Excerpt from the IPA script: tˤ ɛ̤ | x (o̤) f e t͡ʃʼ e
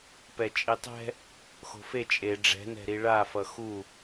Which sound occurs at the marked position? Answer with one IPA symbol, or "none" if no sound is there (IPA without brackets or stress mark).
o̤